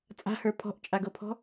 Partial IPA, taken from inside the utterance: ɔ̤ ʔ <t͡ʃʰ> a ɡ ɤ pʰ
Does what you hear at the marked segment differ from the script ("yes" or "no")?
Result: yes